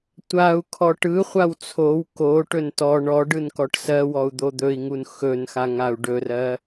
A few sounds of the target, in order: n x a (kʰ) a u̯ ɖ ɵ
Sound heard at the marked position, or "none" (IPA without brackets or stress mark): ŋ